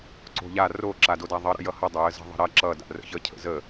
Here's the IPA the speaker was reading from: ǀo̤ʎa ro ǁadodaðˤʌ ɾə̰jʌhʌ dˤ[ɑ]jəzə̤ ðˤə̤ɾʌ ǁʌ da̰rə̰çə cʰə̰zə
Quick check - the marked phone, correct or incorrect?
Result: incorrect